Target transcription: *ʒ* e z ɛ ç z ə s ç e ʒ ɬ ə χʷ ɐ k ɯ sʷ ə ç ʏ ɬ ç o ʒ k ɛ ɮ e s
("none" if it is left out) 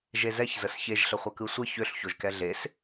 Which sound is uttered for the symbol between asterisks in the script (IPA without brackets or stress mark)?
ʒ